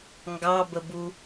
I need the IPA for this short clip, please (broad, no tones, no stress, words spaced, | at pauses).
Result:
ŋɡɑbəbu